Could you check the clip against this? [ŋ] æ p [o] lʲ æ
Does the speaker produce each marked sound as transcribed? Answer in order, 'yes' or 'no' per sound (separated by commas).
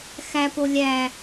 no, yes